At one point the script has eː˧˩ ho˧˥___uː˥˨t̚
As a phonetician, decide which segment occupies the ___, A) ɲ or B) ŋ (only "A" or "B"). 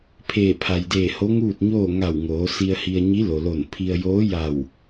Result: B